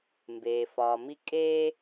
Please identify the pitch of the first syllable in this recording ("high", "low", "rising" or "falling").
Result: low